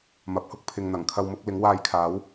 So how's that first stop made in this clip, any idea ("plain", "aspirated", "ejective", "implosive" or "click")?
plain